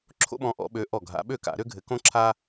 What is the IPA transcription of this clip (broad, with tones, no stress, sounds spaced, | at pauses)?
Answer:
ǁʰ o̰˦ ɓ ɔ̃˨˦ ʔ ɔ̰˧˩˧ ɓ ø˨˦ ʔ ɔ˧˩ ɡʱ a̰˨˦ ɓ ø˥˩ k a̰˧˩˧ ɾ ø˦ ɡʱ ɘ˨˦ k õ˦ ǁʰ a˦